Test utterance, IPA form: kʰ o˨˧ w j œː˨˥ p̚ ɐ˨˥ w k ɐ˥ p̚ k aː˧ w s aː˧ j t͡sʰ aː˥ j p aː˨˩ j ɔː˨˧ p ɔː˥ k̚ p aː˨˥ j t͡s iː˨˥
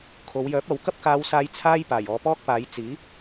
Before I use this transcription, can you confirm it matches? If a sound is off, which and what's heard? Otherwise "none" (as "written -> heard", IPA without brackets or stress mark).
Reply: none